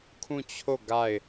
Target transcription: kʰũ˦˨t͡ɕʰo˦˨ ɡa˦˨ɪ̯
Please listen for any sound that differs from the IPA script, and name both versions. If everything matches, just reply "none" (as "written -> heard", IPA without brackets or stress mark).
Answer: none